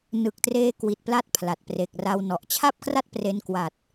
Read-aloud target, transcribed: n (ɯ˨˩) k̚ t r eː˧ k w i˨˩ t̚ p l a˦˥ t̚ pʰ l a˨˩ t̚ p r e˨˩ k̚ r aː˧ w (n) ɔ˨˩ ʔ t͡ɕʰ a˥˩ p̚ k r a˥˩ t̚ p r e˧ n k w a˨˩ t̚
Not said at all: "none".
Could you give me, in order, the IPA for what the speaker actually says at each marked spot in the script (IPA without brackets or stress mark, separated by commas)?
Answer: ɯ˨˩, n